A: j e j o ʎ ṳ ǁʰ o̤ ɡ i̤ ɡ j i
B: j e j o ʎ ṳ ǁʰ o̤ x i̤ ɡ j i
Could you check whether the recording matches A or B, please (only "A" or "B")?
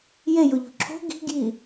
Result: A